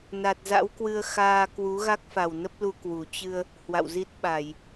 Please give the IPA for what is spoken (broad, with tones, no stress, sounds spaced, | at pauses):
n a˨˩ t̚ z a̰˧˥ w k w ɨ˧ ə̯ x aː˧ k w u˨˦ ɣ a˦˥ k̚ f a˨˩ w n ə˦˥ p̚ l u˧ k w u˨˩ t͡ɕ ɨ˧ ə̯ | h w a̰˧˨ w z i˦˥ t̚ ɓ a˧˩˨ j